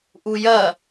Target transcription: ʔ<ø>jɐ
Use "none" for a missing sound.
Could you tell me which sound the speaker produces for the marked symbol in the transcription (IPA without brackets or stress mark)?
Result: u